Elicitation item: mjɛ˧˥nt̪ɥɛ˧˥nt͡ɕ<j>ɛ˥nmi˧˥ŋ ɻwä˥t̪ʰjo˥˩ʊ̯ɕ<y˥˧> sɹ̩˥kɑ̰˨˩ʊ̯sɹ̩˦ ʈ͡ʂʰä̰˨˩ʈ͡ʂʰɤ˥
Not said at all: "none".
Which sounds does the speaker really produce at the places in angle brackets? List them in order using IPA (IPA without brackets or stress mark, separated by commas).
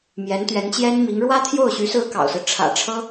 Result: j, y˧˥